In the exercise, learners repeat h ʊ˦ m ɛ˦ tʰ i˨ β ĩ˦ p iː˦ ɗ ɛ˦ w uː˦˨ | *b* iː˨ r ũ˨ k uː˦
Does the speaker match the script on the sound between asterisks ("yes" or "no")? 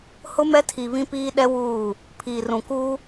no